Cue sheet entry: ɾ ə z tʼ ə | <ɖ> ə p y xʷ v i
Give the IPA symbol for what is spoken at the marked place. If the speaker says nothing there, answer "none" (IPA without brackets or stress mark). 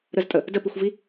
d